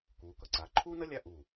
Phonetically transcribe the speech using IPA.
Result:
k uː˩˧ k ʌ˧˩ ǀ aː˩˧ ǃʰ uː˥ n ʌ˥ lʲ a˥˧ ʔ u˧˩

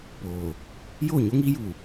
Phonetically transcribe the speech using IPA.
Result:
p oː˨ | j oː˦˨ ɲ o˦ ŋ iː˦ j uː˨

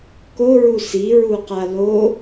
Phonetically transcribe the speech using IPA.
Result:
k o ɹ u s i ɹ u q a l o

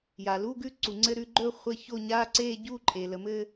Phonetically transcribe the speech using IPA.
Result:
j a˩ l u˧˥˧ ɡ ʉ˥˧ ǀ u˩ ŋ͡ǀ ɘ˧˥˧ ɾ ʉ˥˧ ɡ͡ǃ ɵ˥˧ χʷ ɘ˧˥˧ ç o˥˧ ɲ aː˧˥˧ ǀ eː˥˧ ɟ u˥˧ ǃʼ e˩ l ə˩ m ɘː˥˧

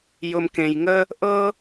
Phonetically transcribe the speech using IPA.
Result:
j ʊ˧ m k ẽ˧ j ŋ ə˥ | ʔ ɤ˥

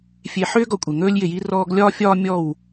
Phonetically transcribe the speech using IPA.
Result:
fʲ e˨ ħ ʏː˦ ɡ ɔ˨ kʷʼ e˨ ŋ ɵː˦ lʲ j ɪ˨ j i˦ r ɔː˦ ɡ lʲ ɒː˦ fʲ ɒː˦ mʲ ɔ˦˨ w

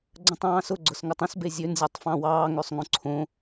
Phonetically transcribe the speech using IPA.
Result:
ɡ͡ǀ ə̃ tˤ ɑ̃ː s ʊ ɡ͡ǀ ʊ s ŋ ə tˤ ə̃ s b e zʲ ø n zʲ o tˤ f ɑ̃ w ɑː ŋ ø sˤ ŋ õ ǀʰ õ

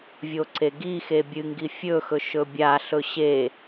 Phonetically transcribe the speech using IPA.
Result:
vʲ o ǀ e ɡ i x e bʲ ɨ ŋ ɡ i fʲ ɵ x ɵ ʃ ɵ bʲ a ɬ ɵ ɕ e

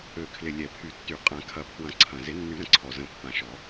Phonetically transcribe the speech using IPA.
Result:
ø˨˩ kʰ l ɪ˨˩ lʲ ɛ˨˩˦ pʰ y˨˩˦ tː y˨˩˦ qʼ ã˨˩˦ kʰ ɐ˨˩ pʰ w ɐ̃˨˩˦ ǀʰ ɐ̃˨˩ z ɪ˨˩˦ nː y˨˩˦ ɾ ə̃˨˩˦ ǀʰ ɔ˨˩ z ə̃˨˩ pː ã˨˩ ʃ ɔ˨˩˦

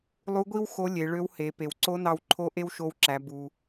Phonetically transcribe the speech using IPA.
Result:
lˠ u˧˥ ɡʷ i˥ w x o˧˥ lʲ e˩˧ ɭ ø˧˥ w h e˩˧ p e˩ w ǀ o˧˥ n ɑ˧ w ǃʰ o˧˥ ʔ e˥ w ʃ o˧ w ǁ æ˩˧ b u˩

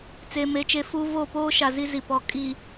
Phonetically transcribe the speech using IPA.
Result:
t͡s eː˨ m e˨˦ t͡ʃ e˨˦ f uː˦ v o˦˨ p oː˦ ʃ a˨ z i˦ z i˨ p ɔ˨ kʼ i˨

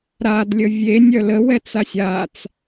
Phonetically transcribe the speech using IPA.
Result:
ɾ a d lʲ ə vʲ e nʲ œ l ə w ɛ t͡s a sʲ a t͡s

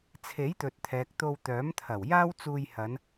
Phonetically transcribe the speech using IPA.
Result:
t͡sʰ e˨˥ j t̪ ɵ˨ t̚ t̪ʰ ɛː˨ k̚ t̪ o˧ w t̪ œː˨˥ m t̪ʰ ɐ˨˩ w j aː˥ w t͡s uː˧ j h ɐ˨˧ n

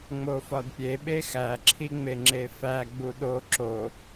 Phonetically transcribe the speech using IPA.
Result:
ŋ͡m o f ɒ d pʲ e ɓ e x æ ǁʰ i ŋ͡m e ŋ͡ǁ e f æ ɡ͡b u ɗ o ǁ o

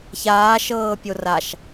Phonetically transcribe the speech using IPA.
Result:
ç aː ʃ ɤː pʲ o r a ʃ

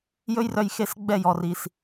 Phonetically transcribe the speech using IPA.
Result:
j ɵ˦ j r œ˧ j x e˦ s ɡ͡b ɛ˦˨ j ɔ˨ r i˨ s

